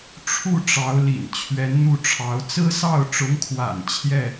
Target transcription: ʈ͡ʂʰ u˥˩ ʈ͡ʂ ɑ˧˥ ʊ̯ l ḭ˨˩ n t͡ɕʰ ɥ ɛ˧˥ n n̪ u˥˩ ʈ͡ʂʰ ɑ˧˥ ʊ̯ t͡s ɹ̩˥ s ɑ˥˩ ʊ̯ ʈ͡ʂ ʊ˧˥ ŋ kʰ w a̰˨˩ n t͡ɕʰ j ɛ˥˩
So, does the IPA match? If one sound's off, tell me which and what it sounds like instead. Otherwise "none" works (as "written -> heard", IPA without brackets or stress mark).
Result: none